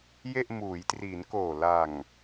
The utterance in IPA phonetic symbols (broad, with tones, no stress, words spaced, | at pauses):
je˥˩ʔ muː˩˦jtri˩˦nkoː˨˩ la˨˩ŋ